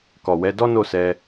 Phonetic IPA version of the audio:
kɔ˨wɛ˨˦ dɔ˦no˦˨ sɛ˧

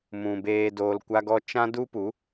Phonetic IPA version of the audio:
mũ˨ beː˨doː˨lkʷa˧ɡɔ˧ t͡ʃã˦ du˦pu˨˦

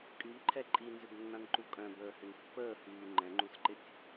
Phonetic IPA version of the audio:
kʼyʎǃʰɛ ǃʼinzʏbnːãnǃu kʼœ̃bəːhʏn pːəːhyː ŋ͡ǃɛ̃ŋ͡ǃusǃɪtʲ

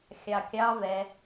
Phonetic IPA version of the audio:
xʲɑkʲɑ vɛ

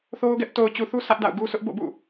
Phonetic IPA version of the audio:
θo˦ʊ̯ɡɛ˦ʔ to˨ʊ̯t͡ɕu˨θu˦ sʰä˦ʔda̰˦˨ʊ̯ɡu˦ sʰʊ˦ʔ bo̰˦˨bṵ˦˨

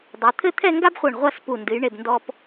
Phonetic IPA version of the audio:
dˤo˩˧t̪ʰɘ˥˧ t̪ʰɛ˥˧ŋɡa˥bχʷɛ˧˩ɳ ʁʷa˥˧spu˧˩ ndɨ˩˧jɳe˧˩b ndɔ˧p

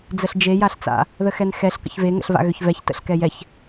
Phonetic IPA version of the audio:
d͡zəɬd͡ʒe jaɬt͡sa̰ | ðəxɛnxɛɬ kə̰çve ŋə̰ɬva̰ɣʏçvɛç tə̰ɬkɛjɛç

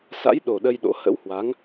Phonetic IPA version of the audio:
sa̰˧˥jɗo˨˩ ɗə˧jɗo̰˧˥ hə̰˧˥whwa˨˦ŋ

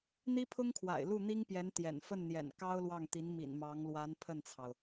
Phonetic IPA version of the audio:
n̪i˥pʰʊ˥ŋkʰwa̰˨˩ɪ̯lu˥˩ n̪i˥ŋpjɛ˧˥nt̪jɛ̰˨˩n fə˥˩nn̪jɛ̰˨˩n kɑ˥ʊ̯lwɑ˥˩ŋt̪i˧˥n mḭ˨˩nmɑ˧˥ŋ lwa˧˥n pʰə˥˩nt͡sʰɑ˩ʊ̯

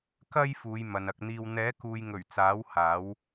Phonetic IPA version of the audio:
kɐ˧j fuː˨˧jmɐ˨nɐ˧k̚n̪iː˧w n̪ɛː˨˥kuː˨jŋɵ˨˩ɥ t͡saː˨˥w haː˨˥w

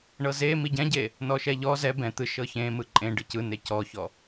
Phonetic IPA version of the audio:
ɳɤze miɟɛ̃ɟe | nɔʃɛʎɔ zɛ bɛ̃ t̪ɯ ʃɤçẽ mɯǃʼẽ ɖɯcɯ necɔçɔ

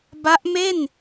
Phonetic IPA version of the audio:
ba˦˥ʔ me˥˩n

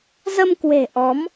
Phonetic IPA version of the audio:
zə˧mkwe̤˨˩ ʔɔ˨˦m

